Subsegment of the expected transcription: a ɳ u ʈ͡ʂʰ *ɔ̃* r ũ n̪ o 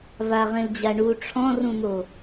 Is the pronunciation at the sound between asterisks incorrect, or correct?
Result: correct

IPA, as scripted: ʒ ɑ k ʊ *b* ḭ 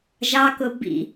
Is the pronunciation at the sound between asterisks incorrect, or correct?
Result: correct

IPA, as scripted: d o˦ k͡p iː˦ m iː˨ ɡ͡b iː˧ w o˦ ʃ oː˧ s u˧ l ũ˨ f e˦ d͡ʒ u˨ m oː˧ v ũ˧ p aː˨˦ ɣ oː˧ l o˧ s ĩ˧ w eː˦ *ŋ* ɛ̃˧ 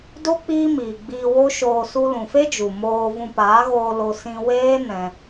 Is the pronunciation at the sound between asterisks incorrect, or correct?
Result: incorrect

